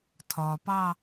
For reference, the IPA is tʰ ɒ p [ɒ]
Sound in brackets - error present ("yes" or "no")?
yes